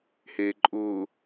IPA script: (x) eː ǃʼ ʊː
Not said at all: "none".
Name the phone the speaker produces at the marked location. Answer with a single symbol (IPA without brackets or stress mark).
h